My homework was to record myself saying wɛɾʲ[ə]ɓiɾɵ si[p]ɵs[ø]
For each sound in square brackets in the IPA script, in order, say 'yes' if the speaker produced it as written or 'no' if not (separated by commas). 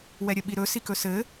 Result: yes, no, no